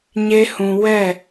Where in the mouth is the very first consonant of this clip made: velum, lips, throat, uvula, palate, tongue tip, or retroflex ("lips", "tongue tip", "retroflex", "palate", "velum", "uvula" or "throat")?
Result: palate